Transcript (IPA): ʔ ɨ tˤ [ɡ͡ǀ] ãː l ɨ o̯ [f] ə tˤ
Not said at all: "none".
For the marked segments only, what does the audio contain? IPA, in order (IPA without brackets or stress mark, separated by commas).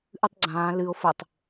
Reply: ɡ͡ǀ, f